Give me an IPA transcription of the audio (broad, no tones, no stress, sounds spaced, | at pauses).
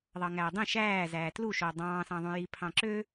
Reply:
ðˤ ɑ ŋ æː dˤ ĩ ʃ æː z æː t l u ʃ oː dˤ ɑ̃ː s ɑ̃ ðˤ ũ j i pʰ ɑ̃ ǁ ø